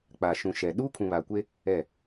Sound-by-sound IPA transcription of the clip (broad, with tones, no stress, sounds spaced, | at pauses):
k͡p a˨ ʃ ũ˨ ʃ ɛ˨ ɗ uː˦ kʰ ũ˨ β a˨ kʷ e˦ | ɛ˦˨